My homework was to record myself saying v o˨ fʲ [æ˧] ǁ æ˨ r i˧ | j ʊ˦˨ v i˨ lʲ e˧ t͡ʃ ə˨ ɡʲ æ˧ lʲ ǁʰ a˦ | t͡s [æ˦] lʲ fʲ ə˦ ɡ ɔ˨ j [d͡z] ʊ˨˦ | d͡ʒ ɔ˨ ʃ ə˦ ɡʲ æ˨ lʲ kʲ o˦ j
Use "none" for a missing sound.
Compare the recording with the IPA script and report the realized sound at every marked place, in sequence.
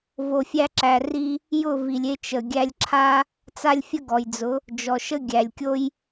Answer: æ˧, a˦, d͡z

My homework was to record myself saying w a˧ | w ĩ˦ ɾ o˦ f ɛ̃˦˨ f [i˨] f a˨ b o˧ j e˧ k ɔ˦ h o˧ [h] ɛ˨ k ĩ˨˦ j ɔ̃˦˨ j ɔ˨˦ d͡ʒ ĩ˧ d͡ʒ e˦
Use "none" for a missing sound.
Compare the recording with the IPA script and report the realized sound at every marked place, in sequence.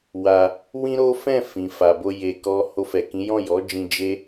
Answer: ĩ˨, f

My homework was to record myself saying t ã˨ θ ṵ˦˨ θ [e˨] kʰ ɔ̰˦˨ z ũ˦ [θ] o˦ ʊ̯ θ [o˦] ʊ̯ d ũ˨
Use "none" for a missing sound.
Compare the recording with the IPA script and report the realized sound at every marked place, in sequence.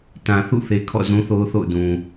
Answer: e˨, θ, o̰˦˨

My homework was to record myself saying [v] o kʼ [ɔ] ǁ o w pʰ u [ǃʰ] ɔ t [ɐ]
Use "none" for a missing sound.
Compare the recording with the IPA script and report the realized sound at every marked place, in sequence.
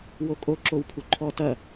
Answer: w, o, ǃʰ, ɐ

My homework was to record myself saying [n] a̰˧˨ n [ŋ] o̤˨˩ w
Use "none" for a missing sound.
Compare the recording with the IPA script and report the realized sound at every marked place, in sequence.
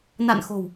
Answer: n, x

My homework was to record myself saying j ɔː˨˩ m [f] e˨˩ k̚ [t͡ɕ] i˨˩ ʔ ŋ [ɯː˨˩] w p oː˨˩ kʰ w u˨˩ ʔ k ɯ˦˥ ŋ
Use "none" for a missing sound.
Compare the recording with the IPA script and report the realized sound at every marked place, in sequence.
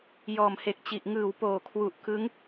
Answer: h, t͡ɕ, ɯː˨˩

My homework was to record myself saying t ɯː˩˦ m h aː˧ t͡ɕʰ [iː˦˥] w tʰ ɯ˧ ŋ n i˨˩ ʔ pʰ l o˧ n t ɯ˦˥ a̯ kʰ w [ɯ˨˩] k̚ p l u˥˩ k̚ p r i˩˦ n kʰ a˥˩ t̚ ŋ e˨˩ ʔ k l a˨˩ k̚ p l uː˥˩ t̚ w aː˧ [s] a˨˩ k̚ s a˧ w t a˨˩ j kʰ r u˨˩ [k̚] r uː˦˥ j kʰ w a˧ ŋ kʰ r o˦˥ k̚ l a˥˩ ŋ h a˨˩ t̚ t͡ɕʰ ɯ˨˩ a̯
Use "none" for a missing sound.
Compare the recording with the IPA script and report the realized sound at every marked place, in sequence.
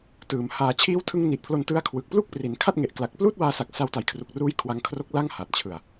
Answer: iː˦˥, ɯ˨˩, s, k̚

